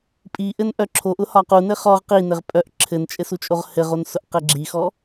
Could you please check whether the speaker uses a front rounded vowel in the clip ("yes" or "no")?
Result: yes